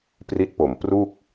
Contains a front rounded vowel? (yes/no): no